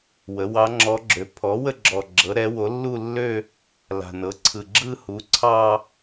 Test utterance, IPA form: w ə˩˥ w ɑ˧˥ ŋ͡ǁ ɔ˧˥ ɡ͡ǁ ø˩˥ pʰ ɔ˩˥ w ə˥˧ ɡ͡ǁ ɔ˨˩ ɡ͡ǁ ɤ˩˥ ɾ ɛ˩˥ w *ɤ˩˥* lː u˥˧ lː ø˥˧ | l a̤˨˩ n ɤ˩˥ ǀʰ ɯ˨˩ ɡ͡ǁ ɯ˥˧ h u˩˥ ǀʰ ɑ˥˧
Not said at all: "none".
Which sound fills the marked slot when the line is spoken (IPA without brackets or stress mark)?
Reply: o˩˥